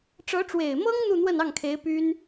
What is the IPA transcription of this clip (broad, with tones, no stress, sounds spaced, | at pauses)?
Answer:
ʈ͡ʂ ɤ˧˥ ʈ͡ʂ w e˨˩ ɪ̯ m ɤ˥ ŋ n̪ u˥˧ n̪ w ə˥˧ n ɑ˥˩ ŋ kʰ e˧˥ ɪ̯ p y˥ n